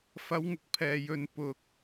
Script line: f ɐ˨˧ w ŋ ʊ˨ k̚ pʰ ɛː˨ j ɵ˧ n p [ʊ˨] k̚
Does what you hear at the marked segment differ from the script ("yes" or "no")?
yes